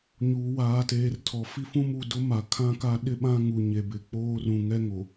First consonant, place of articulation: palatal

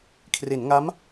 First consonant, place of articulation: velar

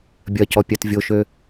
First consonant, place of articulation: labial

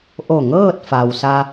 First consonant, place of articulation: glottal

